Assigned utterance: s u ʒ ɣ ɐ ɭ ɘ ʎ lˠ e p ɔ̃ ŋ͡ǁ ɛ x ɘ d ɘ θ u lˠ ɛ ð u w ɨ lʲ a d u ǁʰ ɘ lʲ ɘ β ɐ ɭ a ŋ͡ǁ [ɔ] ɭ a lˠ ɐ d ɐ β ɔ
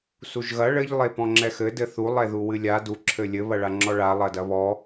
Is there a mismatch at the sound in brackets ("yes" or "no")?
no